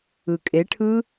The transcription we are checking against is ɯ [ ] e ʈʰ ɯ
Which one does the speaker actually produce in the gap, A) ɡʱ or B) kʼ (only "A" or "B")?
B